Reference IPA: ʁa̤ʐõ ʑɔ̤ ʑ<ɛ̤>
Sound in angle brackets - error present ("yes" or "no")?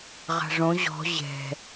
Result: no